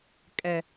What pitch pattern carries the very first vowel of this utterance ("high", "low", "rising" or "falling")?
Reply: low